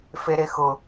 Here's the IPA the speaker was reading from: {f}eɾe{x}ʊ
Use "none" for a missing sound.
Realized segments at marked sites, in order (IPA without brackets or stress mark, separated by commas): f, x